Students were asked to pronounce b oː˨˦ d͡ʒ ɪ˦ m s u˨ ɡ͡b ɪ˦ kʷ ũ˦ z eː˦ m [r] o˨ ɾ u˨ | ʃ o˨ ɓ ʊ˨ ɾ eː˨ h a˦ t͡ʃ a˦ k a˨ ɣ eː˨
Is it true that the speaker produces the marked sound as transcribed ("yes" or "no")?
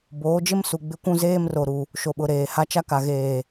yes